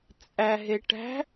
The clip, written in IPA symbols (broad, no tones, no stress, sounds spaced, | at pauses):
t͡sʼ æ ɦ e ʈ æ̤